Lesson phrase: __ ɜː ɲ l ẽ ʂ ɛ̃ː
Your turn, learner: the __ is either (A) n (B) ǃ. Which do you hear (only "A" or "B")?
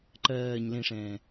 B